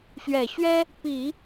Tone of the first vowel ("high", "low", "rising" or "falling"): low